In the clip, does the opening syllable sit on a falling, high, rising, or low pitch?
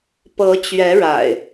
rising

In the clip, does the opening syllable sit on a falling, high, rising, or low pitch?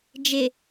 low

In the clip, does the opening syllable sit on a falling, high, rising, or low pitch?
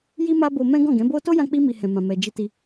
high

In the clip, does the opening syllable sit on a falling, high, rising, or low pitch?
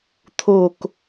falling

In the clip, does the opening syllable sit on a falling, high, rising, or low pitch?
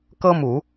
high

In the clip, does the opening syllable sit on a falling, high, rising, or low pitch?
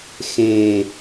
low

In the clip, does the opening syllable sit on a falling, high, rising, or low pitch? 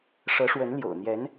rising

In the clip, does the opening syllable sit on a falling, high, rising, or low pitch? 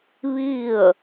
falling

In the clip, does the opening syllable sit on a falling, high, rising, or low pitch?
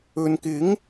low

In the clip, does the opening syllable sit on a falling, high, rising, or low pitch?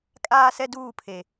high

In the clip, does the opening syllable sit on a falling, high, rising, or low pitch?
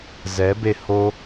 rising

